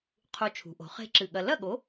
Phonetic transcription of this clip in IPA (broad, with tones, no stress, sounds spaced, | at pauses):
qʰ u˧ t͡ʃʰ ṳ˩˧ ʔ o̤˩˧ χ e̤˦˥ ǁ ɨ˧˩ ɠ ɐ˧ l ɐ˥˨ ɠ o˨˥